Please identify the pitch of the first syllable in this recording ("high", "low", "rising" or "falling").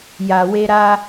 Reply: low